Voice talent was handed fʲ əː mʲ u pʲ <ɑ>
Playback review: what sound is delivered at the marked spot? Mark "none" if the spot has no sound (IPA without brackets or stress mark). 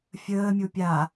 a